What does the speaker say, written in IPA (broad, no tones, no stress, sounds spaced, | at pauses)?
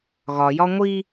ɣ ɒ j ɒ ŋʷ i